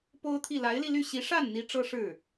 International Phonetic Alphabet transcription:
po˥ʊ̯t̪ʰi˥˩ la˧˥ɪ̯li˧ly˥˩ ɕi˧˥ʂa˥˩nn̪i˧˥ ʈ͡ʂɤ˥ʂɻ̩˥˩

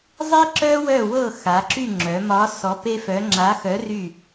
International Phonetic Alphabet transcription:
zˤi˥ǁœ˥wœ˦˨ wɤ˦˨xa˩˧ǁy˦˨ ŋ͡ǁœ˩˧ mɒ˧˥ sɔ˧˥pe˥fœ˧˥ ŋ͡ǁa˧˥xœ˧˥ry˦˨

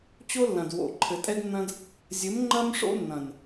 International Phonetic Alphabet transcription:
t͡ɕo˦lːɐ̃˨d wo̰˨ ǃʰɘ˨tʼɛ˦ɡnːɐ̃˦d | zʲɘ˨˦mŋ͡ǃɐ˦m ʂo̰˦nːɐ̃˨n

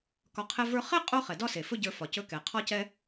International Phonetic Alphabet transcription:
kɒ˧qʰɛ˦və˞˦ χɛ˦ qʼo˦χɛ˨dɒ˦se˨ fɵ˦ɟə˞˧fɒ˨ cɵ˧kɛ˨ qʰɒ˦cɛ˦

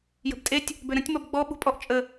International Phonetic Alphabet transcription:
jə̤btʼetʲ | bøɾə̃tʲ mɔbɡ͡bɔ ɓṳpʼɔʔ t͡ʃʼə

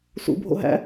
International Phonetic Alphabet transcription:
sṵ bʱo̰ɦæ̰

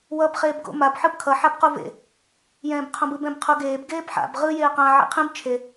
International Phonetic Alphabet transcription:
wʌb χeːbɡo̰ mab ħɯbkʰʌ ħabquvḛ | jɛ̃ːbqʰõbɯb ɛ̃bqʰuɡeːb ɡeːbħa̰b ʁɯ jeːqã ʕḛqʰĩb t͡ʃʰe

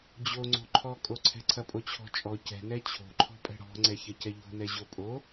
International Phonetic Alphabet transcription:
d͡ʑoŋ͡ǀo̤ ǃʰɔkʼoǀʰɛ̤ ǀʰɐpʼot͡ɕʰɔ̤t͡ʃʼɔ cɛ̤nɛ t͡ɕʰo̤ǃʰɔ̤pʼɛ̤ ɽɔ̤ŋ͡ǀɛ çɐcɛʎo̤nɛ ʑopʼo

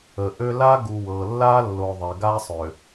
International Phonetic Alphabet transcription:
ə˨ʔø˦ la˦ ɡu˨wɤ˨ lːa˦lːo˨ ðˤe˨ɡa˦sˤø˨

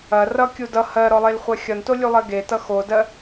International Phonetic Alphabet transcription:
ɐ rʌkʲu dʌ hɜɾɔlˠelχʷɜ xʲʌntolʲulˠɜ ɡetʌ xodɜ

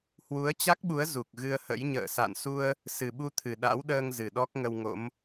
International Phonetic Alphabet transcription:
hwu˨˦ə̯t͡ɕa˦˥k̚ɓu˨˦ə̯ zu˨˩k̚ɣɨ˧ə̯hə̰˧˥j ɲə̰ː˧˨sa̰˧˨nsu˧ə̯ | sɨ˨˩ɓu˧t̪ʰɨ˨˩ ɗa̰˧˥wɗəː˧ŋ zɨ˨˩ɗɔ˦˥k̚ŋə˧w ŋo̰˧˥m

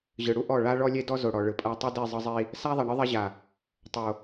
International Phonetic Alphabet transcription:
ʑɯ˨ ɽu˦ʔɔ˦˨ ɭa˦ɭɔ˦ lʲe˦dɔ˦zo˨ɽɔ˨ ɭɯ˨pʼa˦ tˤu˦di˦˨zˤɤ˦ zˤi˦ | sa˦ðˤɛ˨ ɳɯ˦ ðˤɛ˦ʑa˨ | tˤo˨

